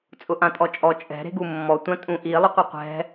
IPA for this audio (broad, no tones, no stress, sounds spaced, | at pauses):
t͡sʼ ʊ ʔ ã tʼ ɔ t͡ʃʼ ɔ t͡ʃʼ ɛ̤ ɾ e̤ ɡ u mː ɔ tʷ ã tʼ ũ ʔ i lˠ ʊ qʷ ɛ qʷ ɛ̤